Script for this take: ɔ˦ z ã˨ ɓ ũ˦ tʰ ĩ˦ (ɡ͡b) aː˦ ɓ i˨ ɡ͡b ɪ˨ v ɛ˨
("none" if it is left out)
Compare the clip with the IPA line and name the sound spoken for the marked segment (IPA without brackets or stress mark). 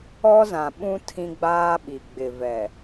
ɡ͡b